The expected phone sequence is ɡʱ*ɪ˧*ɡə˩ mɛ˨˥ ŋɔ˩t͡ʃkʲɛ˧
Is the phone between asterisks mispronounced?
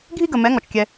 yes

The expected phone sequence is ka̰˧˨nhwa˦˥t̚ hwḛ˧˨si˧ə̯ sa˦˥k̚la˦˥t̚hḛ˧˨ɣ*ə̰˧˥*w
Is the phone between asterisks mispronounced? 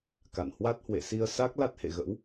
no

